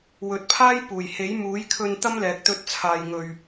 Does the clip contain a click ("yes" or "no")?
no